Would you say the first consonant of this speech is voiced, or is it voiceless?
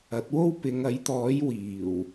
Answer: voiceless